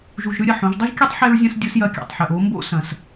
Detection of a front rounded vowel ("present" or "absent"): absent